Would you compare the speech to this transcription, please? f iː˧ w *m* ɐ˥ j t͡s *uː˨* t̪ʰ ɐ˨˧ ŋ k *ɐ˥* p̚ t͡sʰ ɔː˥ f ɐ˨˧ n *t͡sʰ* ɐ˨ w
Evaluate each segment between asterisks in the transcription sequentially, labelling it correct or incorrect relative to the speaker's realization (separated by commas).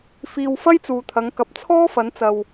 incorrect, correct, incorrect, incorrect